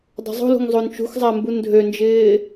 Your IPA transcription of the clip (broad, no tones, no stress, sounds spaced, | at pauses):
dˤ o̤ zˤ o̤ l ṳ ŋ zˤ o n t͡ʃ ṳ x zˤ a m b u n dʱ ø n d͡ʒ ɪː